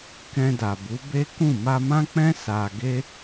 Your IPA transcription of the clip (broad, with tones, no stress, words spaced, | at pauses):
kɛ̃˧da˨bu˨˦ be˦kũ˦˨ ma˧mã˦k͡pɛ̃˦ sa˧ɡe˦